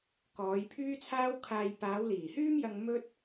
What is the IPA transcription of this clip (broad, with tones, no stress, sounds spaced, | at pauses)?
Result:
k ɔː˨˧ j pʰ yː˥ t͡sʰ aː˥ w kʰ aː˧ j p aː˨˧ w l iː˨˩ h yː˥ m j ɐ˧ ŋ m ɵ˥ t̚